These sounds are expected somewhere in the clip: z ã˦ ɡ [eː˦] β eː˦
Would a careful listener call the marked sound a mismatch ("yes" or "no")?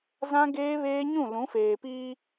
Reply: no